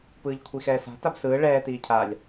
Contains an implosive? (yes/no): no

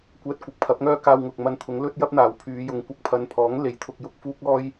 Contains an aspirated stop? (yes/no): yes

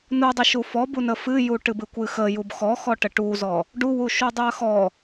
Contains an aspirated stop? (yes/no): no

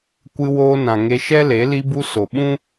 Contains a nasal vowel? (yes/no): yes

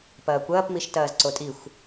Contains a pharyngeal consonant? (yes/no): no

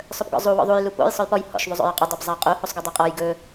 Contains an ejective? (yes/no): yes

